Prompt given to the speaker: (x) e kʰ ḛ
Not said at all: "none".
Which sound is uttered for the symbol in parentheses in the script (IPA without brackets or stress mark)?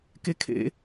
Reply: k